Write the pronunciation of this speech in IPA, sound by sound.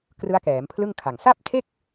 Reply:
k r ɯ˦˥ a̯ k ɛː˩˦ m pʰ l ɯ˥˩ ŋ kʰ a˨˩ ŋ s a˥˩ p̚ tʰ e˥˩ k̚

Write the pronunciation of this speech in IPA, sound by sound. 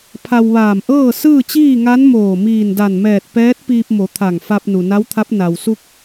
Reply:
pʰ a˧ w ʋ aː˧˩ m ʔ ɤː˥˨ s ɯː˥˨ t͡ɕ iː˥˨ ŋ a˧˥ n m oː˧˩ m iː˧˩ n d a˧˩ n m ɛː˧˩ t̚ p ɛː˧˥ t̚ p iː˧ p̚ m o˩˧ t̪ʰ a˧˩ ŋ f a˧ p̚ n u˩ n a˧˥ w t̪ʰ a˧˥ p̚ n a˩ w s u˧ k̚

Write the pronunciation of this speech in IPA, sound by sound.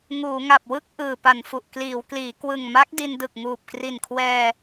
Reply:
ŋ uː˩˦ ŋ a˨˩ p̚ w ɯ˥˩ k̚ ʔ ɯː˨˩ p a˨˩ n f u˨˩ ʔ k l iː˩˦ w k l iː˩˦ k w ɯ˨˩ ŋ m a˦˥ k̚ d i˧ n d ɯ˨˩ k̚ ŋ uː˨˩ p̚ k r i˨˩ n kʰ w ɛː˧

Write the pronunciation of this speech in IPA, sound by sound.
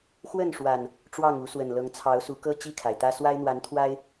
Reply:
x w ə˥˨ n ʂ w a˨˩ n | ʈ͡ʂ w ɑ˥˨ ŋ u˨˦ s w ə˨˩ n l ɤ˨˦ ŋ t͡sʰ ɑ˨˦ ʊ̯ s u˨˦ k ɤ˦ t͡ɕ i˥˨ kʰ a˩ ɪ̯ t̪ ä˦ s w a˦ ɪ̯ n̪ w a˨˦ n t̪ʰ w a˦ ɪ̯

